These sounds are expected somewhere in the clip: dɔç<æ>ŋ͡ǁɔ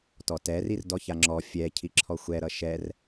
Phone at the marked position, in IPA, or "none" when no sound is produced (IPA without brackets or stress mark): a